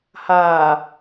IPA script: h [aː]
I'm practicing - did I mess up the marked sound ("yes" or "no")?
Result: no